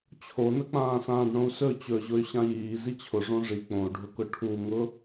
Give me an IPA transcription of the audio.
t͡ɕʰonək͡pãː sãːɖɳõu̯sɵ t͡ɕɵʑʊy̯ ɕãjiː zit͡ɕʰʊ ʐõʐi k͡põu̯ɖʱʊkʊ ʈʰuŋʊ

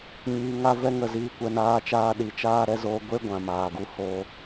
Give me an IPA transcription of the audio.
ɲiː˧ŋa˦ vɛ˦ŋə˦˨ ziː˦kʷɛ˧naː˦t͡ʃaː˦ ɗi˧t͡ʃaː˦ ɾɛ˦zoː˦ ɡʷe˦ ɡʷã˨maː˨ɡu˧ hoː˧

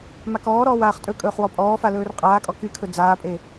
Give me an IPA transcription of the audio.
makɔːɾɔːw aːχtʼɵkʼɵːχ wɔpʼɔːfa lɵːrqʼaːkʼɔ kykʰɵ d͡zaːpʼe

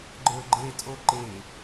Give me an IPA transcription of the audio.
ɡ͡ǃə˞ɡ͡ǃe tʼoǃe

